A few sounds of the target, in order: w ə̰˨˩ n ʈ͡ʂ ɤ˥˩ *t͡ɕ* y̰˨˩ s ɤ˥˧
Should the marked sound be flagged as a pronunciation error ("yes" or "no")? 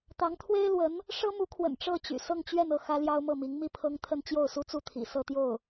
no